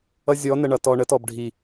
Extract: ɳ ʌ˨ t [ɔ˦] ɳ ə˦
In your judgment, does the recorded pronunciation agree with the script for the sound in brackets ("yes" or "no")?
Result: no